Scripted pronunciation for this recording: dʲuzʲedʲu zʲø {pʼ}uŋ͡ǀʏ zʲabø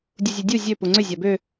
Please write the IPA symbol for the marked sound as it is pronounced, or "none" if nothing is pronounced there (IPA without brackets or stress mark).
p